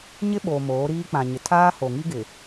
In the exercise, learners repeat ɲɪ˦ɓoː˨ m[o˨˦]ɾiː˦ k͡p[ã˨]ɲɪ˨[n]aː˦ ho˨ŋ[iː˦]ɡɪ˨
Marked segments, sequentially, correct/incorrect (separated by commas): incorrect, correct, incorrect, incorrect